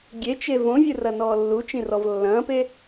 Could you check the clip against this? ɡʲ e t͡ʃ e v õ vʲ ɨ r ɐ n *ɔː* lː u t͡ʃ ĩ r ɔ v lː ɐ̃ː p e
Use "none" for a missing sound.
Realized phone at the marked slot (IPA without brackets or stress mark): ɔː